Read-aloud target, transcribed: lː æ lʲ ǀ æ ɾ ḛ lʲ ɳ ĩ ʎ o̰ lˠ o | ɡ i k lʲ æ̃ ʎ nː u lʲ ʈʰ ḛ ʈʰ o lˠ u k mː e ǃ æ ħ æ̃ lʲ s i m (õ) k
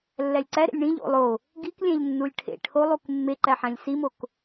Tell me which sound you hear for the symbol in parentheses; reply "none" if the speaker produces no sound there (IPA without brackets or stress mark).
o